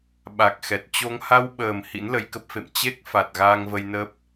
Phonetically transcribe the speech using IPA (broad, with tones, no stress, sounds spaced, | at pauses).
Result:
ɓ a˨˩ k̚ x ɛ˨˩ t̚ t͡ɕ o˧ ŋ h a˧ w ɓ əː˨˩ m h ḭ˧˥ n l ə˧ j k ə˦˥ p̚ f ḛ˧˨ m t͡ɕ e˦˥ k̚ f a˨˩ t̚ ɣ aː˧ ŋ v ə˧ j n ə˦˥ p̚